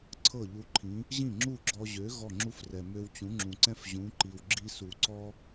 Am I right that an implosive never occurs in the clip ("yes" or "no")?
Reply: yes